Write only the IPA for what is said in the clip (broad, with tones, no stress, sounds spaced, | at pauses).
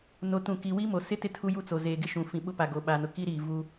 n o˨ t ũ˨ k i˨ w i˦ m o˨ s ɪ˦ t ɪ˦ tʰ u˦ j u˦ t͡s o˨ z eː˨ ɡ ɪ˦ ʃ ũ˨ f ĩ˨ ɓ ʊ˦ p a˨ ɡ o˨ ɓ a˨ n ʊ˨ k i˦ ɾ iː˨ v u˦